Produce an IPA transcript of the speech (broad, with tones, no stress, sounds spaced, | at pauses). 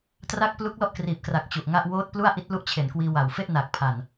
t r a˥˩ k̚ p l u˦˥ k̚ l ɔ˥˩ ʔ k r iː˨˩ p̚ k r a˨˩ k̚ t͡ɕ u˨˩ ʔ ŋ a˥˩ ʔ w oː˦˥ t̚ p l u˥˩ a̯ ʔ i˦˥ t̚ l u˥˩ ʔ t͡ɕʰ e˨˩ n k w iː˧ w a˨˩ w f e˥˩ ʔ n aː˨˩ k̚ pʰ a˨˩ n